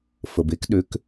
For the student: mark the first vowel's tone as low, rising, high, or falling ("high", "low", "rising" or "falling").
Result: low